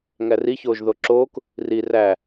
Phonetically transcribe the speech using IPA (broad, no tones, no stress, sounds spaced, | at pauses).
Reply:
ŋ æ r i ç oː ʒ ð o ǁ oː k | r i r æ